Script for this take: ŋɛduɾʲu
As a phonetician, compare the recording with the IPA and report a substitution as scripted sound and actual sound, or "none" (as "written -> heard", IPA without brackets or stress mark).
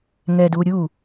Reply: none